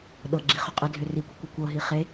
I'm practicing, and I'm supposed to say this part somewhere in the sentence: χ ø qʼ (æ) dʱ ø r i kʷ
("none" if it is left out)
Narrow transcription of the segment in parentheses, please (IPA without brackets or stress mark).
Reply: ɛ